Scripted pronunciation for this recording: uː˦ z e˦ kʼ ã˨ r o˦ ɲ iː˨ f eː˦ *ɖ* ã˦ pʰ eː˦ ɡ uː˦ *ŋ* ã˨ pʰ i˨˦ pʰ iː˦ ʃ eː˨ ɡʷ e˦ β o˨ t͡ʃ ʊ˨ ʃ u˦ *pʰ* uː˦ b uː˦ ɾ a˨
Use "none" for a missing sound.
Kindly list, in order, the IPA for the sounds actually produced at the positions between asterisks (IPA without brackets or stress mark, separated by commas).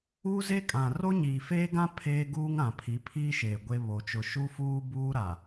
ɡ, ŋ, f